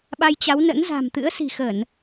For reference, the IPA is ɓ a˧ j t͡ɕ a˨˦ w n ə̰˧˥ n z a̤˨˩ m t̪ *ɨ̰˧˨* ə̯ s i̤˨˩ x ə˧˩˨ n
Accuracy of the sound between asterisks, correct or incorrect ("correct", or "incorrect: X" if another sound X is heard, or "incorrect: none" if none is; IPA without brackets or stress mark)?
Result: incorrect: ɨ̰˧˥